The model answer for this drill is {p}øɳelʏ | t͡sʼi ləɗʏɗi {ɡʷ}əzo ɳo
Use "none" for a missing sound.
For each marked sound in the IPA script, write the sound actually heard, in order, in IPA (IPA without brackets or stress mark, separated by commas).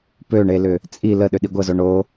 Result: p, ɡʷ